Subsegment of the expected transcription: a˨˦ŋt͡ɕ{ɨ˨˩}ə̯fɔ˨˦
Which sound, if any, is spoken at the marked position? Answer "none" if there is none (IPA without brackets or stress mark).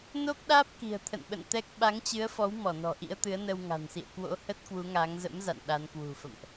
ɨ˨˦